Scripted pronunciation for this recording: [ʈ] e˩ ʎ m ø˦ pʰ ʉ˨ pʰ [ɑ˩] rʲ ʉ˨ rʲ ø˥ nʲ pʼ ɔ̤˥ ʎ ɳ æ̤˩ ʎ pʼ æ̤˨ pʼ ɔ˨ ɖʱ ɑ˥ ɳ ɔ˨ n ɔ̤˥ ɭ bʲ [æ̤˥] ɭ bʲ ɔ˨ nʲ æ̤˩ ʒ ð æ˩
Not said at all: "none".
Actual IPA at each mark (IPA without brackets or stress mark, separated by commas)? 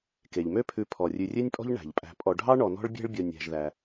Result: k, ɔ˩, æ̤˥